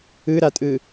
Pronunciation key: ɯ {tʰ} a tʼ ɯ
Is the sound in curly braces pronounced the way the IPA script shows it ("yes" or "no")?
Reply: no